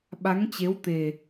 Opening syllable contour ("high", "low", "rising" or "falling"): rising